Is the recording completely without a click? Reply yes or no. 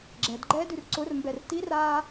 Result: no